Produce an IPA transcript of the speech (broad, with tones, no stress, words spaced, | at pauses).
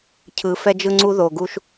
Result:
cʰɯ˨˦fɛ˦d͡ʒɯ˦ŋ͡ǀu˦ ðo˨ɡu˦ʃ